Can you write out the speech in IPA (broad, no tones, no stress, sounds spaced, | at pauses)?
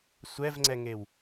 sʷ ɛ v ŋ͡ǀ ɛ ŋ e w